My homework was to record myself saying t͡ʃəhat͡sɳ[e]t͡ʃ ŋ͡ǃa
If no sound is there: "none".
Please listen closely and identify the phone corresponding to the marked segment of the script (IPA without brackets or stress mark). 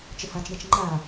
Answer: e